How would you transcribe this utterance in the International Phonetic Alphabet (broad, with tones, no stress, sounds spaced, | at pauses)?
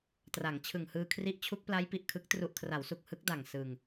t r a˩˦ ŋ t͡ɕʰ ɯ˨˩ ŋ h ɯː˧ kʰ r i˦˥ ʔ t͡ɕʰ u˦˥ k̚ p l a˦˥ j p i˨˩ ʔ kʰ ɯ˦˥ k̚ t r u˨˩ ʔ kʰ r a˩˦ w s u˨˩ k̚ h ɯ˦˥ k̚ d a˨˩ ŋ s ɯ˧ ŋ